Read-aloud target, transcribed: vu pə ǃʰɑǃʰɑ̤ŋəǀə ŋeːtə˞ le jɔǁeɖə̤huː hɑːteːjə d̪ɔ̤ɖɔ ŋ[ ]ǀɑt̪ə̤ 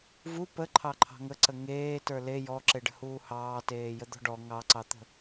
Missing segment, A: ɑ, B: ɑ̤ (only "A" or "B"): A